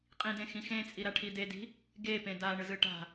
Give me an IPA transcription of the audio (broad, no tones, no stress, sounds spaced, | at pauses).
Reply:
qʼ ĩ d ẽ x ĩ x ẽ t͡sʼ i ɾ a ʈʰ i d e d i̤ | ɡ e p ẽ d a ɳ ɯ z ɯ ʈ a̤